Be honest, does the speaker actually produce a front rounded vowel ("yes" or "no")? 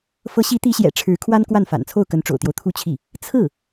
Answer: no